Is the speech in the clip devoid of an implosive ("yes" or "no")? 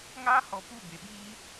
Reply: no